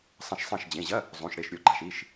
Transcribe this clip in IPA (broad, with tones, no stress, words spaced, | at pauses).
sˤɐ̃˧˩ʃsˤɐ̃˧˩ʃd͡ʑẽ˩˧˩ʑɐ˧˥˧ | zˤũ˩˧˩ʃɽe˧˩ʃɾʲo˧˩ ɡ͡ǃa˩˧˩ʃi˩˧˩ʃ